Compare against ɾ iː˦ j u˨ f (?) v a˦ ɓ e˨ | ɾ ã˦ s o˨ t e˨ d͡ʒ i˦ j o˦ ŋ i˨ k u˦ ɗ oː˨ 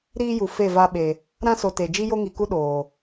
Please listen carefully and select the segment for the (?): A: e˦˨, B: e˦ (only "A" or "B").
A